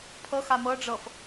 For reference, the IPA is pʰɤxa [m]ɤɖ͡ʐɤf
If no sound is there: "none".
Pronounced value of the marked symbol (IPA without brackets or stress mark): m